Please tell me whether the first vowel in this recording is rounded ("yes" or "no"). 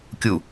yes